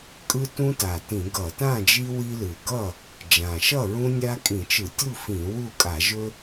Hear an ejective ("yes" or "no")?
yes